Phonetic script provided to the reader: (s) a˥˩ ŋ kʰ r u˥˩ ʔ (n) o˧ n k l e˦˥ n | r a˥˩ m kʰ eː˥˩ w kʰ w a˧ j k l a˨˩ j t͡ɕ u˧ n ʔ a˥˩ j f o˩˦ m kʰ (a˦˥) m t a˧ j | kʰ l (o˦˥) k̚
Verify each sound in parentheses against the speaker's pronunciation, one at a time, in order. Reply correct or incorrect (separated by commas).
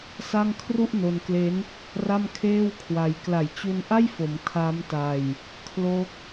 correct, correct, correct, correct